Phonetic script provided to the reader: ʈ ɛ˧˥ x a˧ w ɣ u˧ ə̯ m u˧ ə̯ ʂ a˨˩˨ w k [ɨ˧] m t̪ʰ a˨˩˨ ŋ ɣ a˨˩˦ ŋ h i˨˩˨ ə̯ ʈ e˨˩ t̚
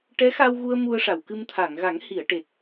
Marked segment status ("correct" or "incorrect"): correct